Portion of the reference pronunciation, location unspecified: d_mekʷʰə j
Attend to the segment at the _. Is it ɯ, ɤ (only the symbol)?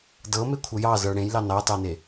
ɤ